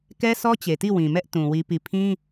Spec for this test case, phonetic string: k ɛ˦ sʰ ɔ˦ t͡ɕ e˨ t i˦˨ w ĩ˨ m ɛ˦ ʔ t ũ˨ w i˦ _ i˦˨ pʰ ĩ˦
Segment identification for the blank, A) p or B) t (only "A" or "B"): A